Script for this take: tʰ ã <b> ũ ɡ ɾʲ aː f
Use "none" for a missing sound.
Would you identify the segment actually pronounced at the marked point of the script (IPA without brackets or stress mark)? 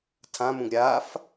m